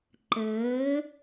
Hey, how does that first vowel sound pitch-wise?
rising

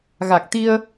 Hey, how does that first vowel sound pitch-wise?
low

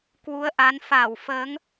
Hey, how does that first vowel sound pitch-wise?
rising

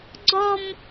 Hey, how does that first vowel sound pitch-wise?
high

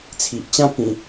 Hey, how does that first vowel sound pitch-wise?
low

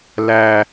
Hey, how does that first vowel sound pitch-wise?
low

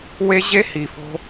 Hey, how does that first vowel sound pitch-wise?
high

